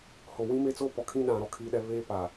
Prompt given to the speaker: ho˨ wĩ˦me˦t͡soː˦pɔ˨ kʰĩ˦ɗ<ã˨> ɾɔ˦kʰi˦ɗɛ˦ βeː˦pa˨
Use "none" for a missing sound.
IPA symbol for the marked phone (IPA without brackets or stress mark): ã˨